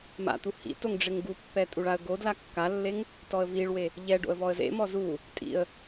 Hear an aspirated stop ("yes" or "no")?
no